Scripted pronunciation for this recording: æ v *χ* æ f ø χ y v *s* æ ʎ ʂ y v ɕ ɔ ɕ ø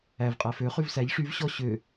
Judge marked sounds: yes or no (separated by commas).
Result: no, yes